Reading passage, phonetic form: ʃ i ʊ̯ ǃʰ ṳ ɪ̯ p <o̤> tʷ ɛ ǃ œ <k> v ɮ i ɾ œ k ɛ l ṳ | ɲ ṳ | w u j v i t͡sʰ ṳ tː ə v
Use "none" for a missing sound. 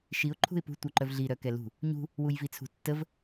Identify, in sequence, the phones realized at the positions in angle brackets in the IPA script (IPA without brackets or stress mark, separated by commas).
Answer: ṳ, none